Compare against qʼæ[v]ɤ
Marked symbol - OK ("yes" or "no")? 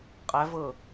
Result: yes